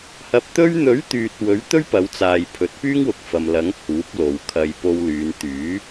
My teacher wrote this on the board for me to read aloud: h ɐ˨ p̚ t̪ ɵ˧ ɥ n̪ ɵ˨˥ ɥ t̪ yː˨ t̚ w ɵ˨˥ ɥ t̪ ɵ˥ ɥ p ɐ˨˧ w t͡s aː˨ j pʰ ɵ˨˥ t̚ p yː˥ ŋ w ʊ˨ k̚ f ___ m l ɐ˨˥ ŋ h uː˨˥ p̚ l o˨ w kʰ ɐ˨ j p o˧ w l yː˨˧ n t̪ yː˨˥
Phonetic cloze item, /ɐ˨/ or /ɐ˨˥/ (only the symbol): ɐ˨